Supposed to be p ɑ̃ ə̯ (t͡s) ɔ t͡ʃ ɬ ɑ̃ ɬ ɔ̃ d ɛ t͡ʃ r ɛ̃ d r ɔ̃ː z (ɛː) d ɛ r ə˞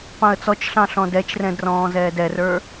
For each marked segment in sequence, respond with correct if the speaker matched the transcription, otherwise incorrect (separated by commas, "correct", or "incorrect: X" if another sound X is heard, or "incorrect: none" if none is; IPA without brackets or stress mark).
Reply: correct, correct